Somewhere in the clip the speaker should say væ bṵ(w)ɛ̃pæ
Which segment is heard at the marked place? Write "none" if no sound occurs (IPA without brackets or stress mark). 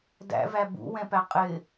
w